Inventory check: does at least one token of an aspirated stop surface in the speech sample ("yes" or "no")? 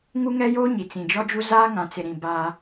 no